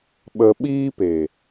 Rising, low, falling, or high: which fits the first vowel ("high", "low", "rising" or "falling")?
low